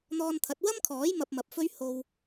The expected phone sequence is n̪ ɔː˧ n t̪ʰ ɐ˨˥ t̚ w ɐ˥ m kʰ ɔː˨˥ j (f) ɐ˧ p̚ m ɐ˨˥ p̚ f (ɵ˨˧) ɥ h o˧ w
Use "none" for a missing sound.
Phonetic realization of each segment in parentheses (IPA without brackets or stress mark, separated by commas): m, ɵ˥